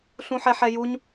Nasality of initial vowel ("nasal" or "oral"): nasal